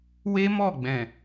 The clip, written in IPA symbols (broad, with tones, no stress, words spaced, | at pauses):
we˦mɔ˦˨ɡ͡bɛ̃˨